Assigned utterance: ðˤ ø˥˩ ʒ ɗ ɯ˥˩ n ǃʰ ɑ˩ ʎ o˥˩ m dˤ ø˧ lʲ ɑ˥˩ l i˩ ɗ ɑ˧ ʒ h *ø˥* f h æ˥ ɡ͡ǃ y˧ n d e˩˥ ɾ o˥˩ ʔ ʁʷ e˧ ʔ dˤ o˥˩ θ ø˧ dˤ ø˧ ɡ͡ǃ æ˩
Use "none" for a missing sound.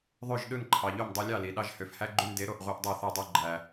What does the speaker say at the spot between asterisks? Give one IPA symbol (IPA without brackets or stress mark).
ø˩